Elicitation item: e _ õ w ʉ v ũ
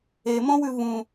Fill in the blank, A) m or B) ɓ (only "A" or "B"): A